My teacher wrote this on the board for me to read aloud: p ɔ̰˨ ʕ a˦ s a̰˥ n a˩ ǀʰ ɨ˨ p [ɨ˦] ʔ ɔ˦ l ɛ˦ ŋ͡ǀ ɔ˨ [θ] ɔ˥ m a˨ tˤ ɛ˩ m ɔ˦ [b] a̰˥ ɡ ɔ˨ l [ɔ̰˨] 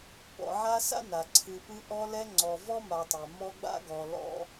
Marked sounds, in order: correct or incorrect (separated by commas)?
correct, incorrect, incorrect, incorrect